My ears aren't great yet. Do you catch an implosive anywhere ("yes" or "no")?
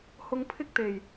no